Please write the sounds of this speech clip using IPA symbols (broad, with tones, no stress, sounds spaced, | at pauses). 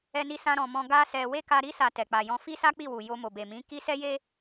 ɛ˦ n i˦ s ã˦ ɾ ɔ̃˧ m ɔ̃˦ ɡ a˦ s ɛ˧ w e˦ k a˧ ɾ i˦ s a˧ t ɛ˨ k͡p a˨ j ɔ̃˧ f i˦ s a˦ k͡p i˦˨ w u˨ j o˧ m o˨ b e˨ m ĩ˨˦ k i˦ s ɛ˦ j e˦